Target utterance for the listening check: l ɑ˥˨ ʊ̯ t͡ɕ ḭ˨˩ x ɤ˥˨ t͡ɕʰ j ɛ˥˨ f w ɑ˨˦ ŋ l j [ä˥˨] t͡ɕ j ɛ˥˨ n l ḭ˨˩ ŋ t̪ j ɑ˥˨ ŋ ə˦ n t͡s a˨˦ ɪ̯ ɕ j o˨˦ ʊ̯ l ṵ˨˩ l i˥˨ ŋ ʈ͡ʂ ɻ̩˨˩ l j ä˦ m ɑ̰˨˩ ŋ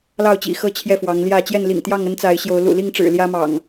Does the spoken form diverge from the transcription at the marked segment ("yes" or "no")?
no